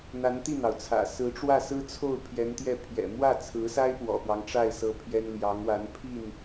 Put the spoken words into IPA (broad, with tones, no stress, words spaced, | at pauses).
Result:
n̪a˧˥nt̪i˥˩n̪ɑ˩ʊ̯t͡sʰä̰˨˩ sɹ̩˧˥ʈ͡ʂwä˥˩ sɹ̩˥t͡sʰo˥˩ʊ̯ pʰjɛ˧˥nt̪jɛ˥˩ pʰjɛ̰˨˩mwä˥˩t͡sʰɹ̩˧˥sa˥ɪ̯ pwɔ̰˨˩pwɑ˦ŋʈ͡ʂa˥˩ɪ̯ sɤ˥pʰjɛ˥n ljɑ˧˥ŋwa˧˥npʰi˥˩n